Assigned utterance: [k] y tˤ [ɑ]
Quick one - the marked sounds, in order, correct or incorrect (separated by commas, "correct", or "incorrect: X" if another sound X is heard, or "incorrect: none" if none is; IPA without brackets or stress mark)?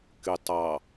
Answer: correct, correct